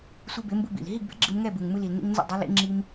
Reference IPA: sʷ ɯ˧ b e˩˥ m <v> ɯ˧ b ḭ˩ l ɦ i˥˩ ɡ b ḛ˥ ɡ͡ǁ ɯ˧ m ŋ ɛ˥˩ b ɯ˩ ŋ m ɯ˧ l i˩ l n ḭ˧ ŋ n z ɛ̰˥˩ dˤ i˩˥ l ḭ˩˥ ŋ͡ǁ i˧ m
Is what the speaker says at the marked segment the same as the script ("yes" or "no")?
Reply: no